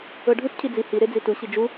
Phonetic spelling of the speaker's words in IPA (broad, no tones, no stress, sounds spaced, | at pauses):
ɤ ɖʱ u t cʰ i d͡z i h i ɾ e d͡z i t u ɕ i d͡ʒ u